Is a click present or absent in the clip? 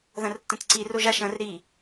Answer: present